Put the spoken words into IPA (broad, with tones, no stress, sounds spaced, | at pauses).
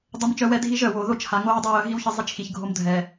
dˤ ə˨ m t͡ʃ œ˨ w ɛ˦˨ dʱ i˦ ʒ œ˨ w o˨ ð o˦ t͡ʃ h a˨ ŋ o˦ ɹ dˤ ɛ˦ j œ˨˦ ɦ i˦ w ç ə˦ zˤ i˦ t͡ʃ x i˨ ç ɡʱ o˦ m dʱ ɛ˨